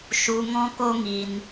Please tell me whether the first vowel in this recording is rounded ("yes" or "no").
yes